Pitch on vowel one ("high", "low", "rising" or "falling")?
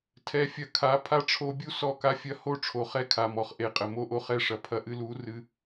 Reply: rising